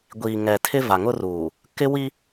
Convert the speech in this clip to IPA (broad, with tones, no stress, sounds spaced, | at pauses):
ɡʷ iː˨ ŋ ɛ˨ tʰ ɪ˦ v a˨ ŋ ʊ˦ r uː˨ | k ɪ˦ w i˦